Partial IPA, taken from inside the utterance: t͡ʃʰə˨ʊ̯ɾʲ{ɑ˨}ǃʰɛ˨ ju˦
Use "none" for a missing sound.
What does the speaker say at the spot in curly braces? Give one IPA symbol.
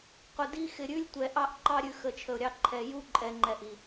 ɑ˦˨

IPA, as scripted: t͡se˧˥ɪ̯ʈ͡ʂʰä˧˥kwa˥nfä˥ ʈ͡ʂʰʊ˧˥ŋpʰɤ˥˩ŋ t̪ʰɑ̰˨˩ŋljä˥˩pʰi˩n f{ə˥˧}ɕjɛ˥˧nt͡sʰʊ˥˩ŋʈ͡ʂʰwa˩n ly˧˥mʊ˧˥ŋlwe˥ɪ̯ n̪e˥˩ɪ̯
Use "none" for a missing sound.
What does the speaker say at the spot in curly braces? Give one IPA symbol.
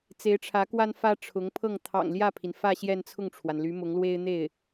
ä˥˧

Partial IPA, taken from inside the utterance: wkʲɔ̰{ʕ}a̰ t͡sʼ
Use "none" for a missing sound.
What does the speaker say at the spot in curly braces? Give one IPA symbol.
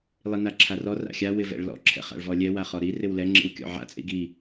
ʕ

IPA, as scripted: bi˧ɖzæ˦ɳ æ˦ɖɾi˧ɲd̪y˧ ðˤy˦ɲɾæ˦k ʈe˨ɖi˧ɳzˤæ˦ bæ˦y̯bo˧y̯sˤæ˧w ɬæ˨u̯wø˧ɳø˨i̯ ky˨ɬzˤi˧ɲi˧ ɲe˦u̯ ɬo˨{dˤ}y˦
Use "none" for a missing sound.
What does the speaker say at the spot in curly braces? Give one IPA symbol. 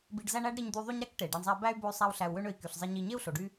ɖ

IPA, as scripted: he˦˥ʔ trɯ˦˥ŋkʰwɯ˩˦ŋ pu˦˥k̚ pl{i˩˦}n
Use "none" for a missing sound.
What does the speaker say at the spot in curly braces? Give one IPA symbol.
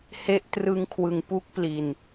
i˨˩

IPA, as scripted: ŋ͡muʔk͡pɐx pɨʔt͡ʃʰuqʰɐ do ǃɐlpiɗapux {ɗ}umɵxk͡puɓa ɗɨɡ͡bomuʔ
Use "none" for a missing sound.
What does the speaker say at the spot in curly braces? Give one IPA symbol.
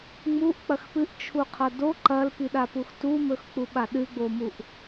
t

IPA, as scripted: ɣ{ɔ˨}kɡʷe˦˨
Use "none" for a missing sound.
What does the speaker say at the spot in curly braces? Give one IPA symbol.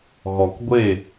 ɔ˨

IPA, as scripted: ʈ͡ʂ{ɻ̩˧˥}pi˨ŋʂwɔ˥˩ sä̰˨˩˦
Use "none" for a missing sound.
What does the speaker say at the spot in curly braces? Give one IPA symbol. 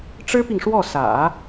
ɻ̩˥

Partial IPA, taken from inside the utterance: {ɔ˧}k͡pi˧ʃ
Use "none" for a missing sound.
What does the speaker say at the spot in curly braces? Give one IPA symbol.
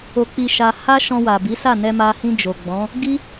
o˧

